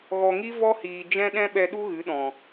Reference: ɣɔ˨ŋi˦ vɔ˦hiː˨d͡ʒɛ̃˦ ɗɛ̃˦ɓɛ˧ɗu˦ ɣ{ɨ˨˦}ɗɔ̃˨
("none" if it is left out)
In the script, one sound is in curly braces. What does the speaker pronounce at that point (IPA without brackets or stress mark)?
ɨ˨˦